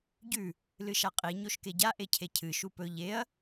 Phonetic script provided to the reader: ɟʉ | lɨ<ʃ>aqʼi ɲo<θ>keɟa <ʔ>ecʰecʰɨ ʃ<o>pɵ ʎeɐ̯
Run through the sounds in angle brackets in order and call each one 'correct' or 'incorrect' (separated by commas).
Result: correct, incorrect, correct, incorrect